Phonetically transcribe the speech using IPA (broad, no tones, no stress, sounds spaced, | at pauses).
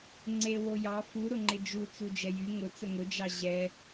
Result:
ŋ͡ǀ e w o j ɑ f u ɾ ʊ ŋ͡ǃ ɪ d͡ʒ u t͡s u d͡ʒ ɛ j y ŋ ʊ t͡s ə ŋ ʊ d͡ʒ ɑ ʑ ɛ